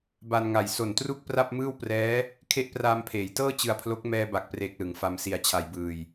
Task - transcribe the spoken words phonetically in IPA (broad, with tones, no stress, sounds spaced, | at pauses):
b a˧ n ŋ a˨˩ j s o˨˩ n t r u˥˩ k̚ p r a˥˩ p̚ m ɯː˥˩ w p r ɛː˦˥ | kʰ e˦˥ ʔ p r aː˧ m pʰ eː˩˦ j t ɤː˥˩ t͡ɕ ɯ˧ a̯ pʰ l o˦˥ k̚ m ɛː˧ b a˨˩ k̚ p r eː˨˩ k̚ l ɯ˩˦ ŋ f a˧ m s i˧ a̯ t͡ɕʰ a˧ j b ɯː˧ j